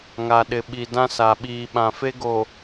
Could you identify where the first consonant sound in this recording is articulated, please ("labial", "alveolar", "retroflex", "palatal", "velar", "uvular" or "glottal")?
velar